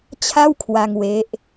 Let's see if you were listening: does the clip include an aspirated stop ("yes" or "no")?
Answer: yes